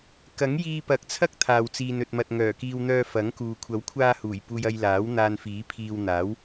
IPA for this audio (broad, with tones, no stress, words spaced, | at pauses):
kɐ˨˥ŋjiː˧pɐ˨k̚t͡sʰɐ˥k̚ t̪ʰaː˨wt͡siː˨n ɵ˨t̚mɐ˨t̚ŋœː˨˩kiː˧w n̪œː˧ fɐ˨˥ŋkuː˨ kʷʰɐ˨˥wkʷʰaː˧huː˨˩j puː˧jɐ˧j laː˨˥w n̪aː˧nfiː˨˥pʰiː˧w n̪aː˨˥w